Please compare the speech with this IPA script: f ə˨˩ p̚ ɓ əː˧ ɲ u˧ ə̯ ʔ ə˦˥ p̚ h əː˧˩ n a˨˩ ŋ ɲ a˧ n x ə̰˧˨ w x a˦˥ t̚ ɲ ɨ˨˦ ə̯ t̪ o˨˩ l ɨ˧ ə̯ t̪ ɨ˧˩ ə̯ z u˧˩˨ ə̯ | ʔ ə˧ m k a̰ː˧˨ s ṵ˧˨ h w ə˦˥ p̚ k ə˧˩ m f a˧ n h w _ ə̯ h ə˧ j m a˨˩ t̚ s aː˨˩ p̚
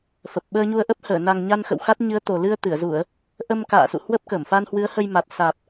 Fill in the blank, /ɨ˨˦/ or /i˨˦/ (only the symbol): ɨ˨˦